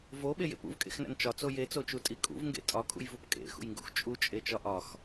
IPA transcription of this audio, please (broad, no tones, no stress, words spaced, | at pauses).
voɓejḛp ṵvkʼḛxnæ̰n t͡ʃɒt͡so jet͡sot͡ʃutʼi kʼṵvŋɡḛ tʼɒkʼṵjvup kʼḛxṵjŋɡṵx t͡ʃʼut͡ʃʼet͡ʃɒ ʔɒx